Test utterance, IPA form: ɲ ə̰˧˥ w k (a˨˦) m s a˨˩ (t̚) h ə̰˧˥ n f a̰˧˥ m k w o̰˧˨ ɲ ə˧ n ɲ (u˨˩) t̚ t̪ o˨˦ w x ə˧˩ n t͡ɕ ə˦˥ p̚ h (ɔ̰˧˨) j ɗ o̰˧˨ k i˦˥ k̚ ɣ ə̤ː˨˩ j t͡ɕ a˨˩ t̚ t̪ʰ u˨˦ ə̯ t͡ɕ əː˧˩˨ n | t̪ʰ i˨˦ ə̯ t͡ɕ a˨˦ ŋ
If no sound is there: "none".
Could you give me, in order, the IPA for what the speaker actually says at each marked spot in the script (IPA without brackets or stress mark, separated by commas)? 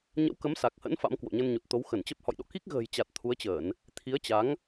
ə˨˦, k̚, u˨˩, ɔ̰˧˨